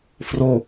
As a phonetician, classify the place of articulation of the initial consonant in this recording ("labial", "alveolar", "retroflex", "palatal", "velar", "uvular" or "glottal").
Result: labial